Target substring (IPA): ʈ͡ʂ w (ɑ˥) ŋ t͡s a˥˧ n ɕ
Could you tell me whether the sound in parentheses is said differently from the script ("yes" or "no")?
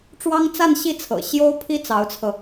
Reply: no